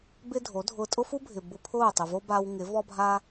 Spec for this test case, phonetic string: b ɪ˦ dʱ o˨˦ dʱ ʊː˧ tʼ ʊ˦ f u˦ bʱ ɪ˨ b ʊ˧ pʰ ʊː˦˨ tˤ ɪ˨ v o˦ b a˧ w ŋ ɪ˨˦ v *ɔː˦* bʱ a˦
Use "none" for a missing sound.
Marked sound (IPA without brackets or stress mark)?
ɔ˦